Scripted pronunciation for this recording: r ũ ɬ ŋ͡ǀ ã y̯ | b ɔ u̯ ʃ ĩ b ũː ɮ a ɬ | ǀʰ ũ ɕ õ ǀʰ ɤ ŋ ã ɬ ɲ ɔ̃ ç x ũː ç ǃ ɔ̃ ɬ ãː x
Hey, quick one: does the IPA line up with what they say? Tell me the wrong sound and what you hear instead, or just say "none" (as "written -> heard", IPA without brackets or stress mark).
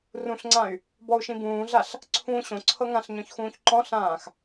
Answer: none